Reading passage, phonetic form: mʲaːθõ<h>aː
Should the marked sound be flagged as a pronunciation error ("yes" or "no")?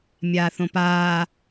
yes